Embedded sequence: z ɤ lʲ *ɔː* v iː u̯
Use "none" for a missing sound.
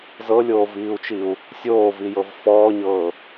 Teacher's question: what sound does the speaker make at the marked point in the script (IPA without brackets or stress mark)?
oː